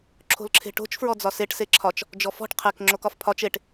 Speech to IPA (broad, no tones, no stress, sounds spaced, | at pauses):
ǁʰ o̤ l ǁʰ e̤ ʈ o̤ t͡ʃ f ɹ ɔ d͡z ɒ s e ʈ s e ǁʰ ɒ t͡ʃ | d͡ʒ ɔ f ɔ̤ ʈ qʰ e k ŋ͡ǁ o k ɒ f pʰ ɒ t͡ʃ e ʈ